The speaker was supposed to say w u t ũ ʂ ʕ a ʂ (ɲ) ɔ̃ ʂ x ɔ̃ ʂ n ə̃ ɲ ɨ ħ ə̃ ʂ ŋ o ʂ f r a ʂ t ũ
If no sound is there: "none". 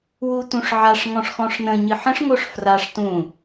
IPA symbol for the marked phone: ŋ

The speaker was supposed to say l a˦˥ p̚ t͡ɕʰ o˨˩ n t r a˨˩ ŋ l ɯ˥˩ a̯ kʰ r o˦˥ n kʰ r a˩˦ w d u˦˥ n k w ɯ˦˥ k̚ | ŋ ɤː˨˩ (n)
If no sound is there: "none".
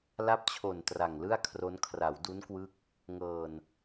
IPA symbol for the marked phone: n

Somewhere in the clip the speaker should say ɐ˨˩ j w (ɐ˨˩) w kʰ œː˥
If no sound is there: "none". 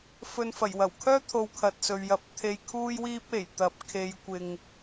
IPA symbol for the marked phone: ɐ˨˩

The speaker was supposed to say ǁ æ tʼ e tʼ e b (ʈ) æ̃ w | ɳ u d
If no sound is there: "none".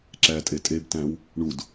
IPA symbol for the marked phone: t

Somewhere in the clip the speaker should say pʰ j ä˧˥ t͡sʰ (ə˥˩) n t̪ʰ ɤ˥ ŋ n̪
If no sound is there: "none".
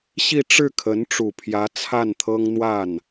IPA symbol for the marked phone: a˥˩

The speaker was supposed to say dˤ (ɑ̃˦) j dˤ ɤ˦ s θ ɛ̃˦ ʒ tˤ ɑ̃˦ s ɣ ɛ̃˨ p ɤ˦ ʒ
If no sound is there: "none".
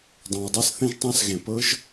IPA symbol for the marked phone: ɑ̃˨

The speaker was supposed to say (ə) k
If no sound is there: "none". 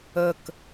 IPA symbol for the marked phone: ə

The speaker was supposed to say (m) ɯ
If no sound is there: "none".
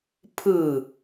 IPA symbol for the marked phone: pʰ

